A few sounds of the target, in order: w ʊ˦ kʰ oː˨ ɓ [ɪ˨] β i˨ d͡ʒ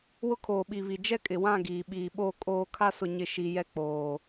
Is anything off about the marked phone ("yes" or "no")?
yes